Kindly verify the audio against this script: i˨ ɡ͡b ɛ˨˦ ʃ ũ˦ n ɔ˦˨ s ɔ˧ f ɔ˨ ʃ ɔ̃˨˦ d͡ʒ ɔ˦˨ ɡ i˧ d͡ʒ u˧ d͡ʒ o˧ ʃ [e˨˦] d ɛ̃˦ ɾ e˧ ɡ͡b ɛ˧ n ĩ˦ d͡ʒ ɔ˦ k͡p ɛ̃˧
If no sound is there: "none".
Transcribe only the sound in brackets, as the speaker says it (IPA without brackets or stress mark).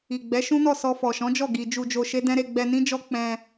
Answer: e˦